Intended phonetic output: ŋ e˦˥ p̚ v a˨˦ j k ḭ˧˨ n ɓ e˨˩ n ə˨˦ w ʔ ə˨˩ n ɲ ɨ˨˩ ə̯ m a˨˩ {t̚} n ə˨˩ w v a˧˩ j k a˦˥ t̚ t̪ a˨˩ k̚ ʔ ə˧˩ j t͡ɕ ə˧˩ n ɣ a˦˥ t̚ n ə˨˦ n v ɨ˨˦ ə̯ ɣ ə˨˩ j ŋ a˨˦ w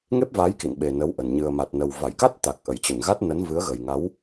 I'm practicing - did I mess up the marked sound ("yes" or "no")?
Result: no